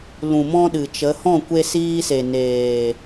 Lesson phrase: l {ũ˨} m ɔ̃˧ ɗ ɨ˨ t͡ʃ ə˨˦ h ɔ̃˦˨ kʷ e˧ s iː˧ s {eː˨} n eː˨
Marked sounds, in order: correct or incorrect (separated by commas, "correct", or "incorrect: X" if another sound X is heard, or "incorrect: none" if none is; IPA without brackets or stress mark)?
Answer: correct, incorrect: e˨